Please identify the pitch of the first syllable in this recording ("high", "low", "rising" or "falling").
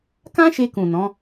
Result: high